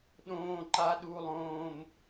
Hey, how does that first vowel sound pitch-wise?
high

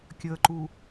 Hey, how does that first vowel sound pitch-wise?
low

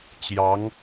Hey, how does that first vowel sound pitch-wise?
rising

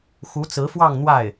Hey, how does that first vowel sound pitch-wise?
rising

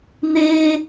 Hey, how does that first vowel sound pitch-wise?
high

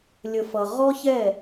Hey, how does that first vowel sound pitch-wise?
low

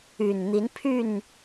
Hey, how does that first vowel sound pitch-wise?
low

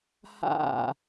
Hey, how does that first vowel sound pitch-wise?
falling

